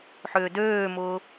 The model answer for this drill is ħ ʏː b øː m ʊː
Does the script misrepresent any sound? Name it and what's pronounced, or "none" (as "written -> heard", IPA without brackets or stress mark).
b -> d